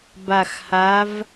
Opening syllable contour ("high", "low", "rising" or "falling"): low